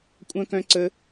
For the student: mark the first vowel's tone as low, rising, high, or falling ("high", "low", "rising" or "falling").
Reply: high